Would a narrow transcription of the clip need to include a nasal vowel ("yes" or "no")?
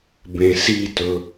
yes